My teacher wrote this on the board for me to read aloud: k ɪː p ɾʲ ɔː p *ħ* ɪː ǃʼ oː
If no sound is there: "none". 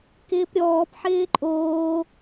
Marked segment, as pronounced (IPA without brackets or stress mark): ħ